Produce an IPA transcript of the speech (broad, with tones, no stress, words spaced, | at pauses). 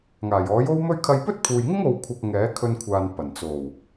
ŋaː˨˩jɔː˨˥jo˥wmɵ˥ɥ kʰɐ˧jpɵ˥t̚pʰuː˨jŋɪ˥ŋ o˨wkʷʰɐ˨k̚ ŋɛː˨˥kʰɵ˧nkʷʰaː˨n pɐ˨˩nt͡so˨˩w